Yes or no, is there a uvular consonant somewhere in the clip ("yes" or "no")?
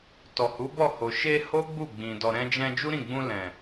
no